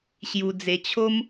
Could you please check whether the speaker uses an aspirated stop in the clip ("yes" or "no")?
yes